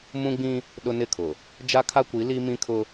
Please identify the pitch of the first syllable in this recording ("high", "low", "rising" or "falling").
high